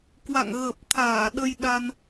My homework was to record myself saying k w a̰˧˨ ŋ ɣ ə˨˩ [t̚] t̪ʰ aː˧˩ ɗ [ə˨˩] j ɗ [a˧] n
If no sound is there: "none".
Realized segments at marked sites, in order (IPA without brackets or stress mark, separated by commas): p̚, ə˧, a˧